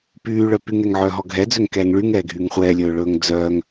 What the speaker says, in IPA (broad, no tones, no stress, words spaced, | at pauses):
pyːɭœ pyŋɛŋʕœːɦɔ ɡʱɛd͡zøŋkɛːŋ ɭyŋɛːɡʱyːŋ χʷɛːlʲɵːɭɵːŋ d͡zœːŋ